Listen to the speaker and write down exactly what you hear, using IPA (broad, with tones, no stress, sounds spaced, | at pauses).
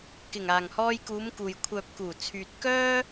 k ɪ˨˩ ŋ aː˨˩ ŋ h ɔː˧ j k uː˨˧ m k uː˨ j kʷʰ œː˨ p̚ k uː˨˩ t͡sʰ yː˨ t̚ k œː˥